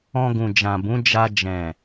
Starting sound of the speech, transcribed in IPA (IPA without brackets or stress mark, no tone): ɔ̃